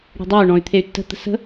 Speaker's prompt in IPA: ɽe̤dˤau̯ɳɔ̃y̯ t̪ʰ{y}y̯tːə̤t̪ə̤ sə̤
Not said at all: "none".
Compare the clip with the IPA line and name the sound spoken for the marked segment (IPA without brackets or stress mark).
e